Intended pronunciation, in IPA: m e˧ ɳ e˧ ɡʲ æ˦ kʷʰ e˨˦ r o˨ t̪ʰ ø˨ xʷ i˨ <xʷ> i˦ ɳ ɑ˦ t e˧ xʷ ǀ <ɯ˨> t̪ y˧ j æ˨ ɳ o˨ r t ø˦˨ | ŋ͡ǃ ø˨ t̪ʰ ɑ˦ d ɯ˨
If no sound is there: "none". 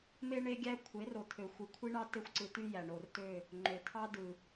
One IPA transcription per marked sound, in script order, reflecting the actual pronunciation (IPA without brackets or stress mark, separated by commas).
kʷʰ, ɯ˨